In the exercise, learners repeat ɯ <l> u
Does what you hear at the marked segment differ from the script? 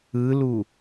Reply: no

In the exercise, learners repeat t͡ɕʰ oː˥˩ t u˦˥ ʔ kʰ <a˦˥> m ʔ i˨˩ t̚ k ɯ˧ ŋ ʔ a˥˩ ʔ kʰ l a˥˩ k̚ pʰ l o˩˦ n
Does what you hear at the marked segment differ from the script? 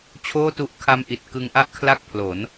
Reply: no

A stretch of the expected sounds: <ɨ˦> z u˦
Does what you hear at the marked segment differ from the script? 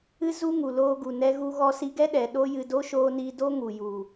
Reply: no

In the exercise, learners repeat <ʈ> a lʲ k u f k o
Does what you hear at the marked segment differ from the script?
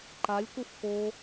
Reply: yes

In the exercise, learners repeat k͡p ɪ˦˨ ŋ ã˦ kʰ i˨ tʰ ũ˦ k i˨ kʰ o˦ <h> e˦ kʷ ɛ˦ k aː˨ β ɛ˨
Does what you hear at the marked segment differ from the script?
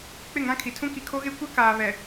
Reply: yes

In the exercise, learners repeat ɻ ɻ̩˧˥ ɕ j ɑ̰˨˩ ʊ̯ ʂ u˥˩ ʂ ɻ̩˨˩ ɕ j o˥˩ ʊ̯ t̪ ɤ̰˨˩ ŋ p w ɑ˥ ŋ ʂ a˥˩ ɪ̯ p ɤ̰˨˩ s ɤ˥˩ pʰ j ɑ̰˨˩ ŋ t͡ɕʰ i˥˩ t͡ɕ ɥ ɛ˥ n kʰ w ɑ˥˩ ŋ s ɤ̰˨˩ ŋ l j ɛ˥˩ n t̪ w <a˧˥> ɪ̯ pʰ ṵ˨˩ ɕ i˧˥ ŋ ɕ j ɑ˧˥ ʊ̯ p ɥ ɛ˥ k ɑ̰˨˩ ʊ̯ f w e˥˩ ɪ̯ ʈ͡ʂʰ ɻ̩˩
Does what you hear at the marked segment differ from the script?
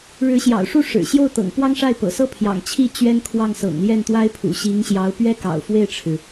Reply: yes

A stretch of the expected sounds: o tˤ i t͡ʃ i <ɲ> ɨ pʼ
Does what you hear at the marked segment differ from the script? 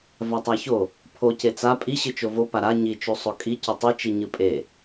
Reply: no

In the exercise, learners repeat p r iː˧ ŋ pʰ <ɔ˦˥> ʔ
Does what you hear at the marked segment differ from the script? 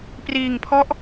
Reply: no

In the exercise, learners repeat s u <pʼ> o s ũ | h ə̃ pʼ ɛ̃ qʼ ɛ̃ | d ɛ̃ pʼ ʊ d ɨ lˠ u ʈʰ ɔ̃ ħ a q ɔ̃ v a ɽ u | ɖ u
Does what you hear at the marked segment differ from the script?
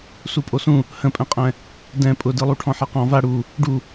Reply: no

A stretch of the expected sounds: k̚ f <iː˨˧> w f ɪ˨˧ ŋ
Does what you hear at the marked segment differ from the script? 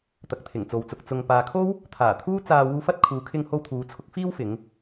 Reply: yes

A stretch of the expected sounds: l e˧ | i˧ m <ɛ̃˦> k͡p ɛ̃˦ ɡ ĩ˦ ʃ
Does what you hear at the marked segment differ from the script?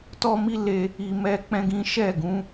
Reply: yes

